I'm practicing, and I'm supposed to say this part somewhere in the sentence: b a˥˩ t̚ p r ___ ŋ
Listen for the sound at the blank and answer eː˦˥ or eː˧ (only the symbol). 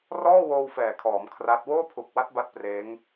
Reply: eː˦˥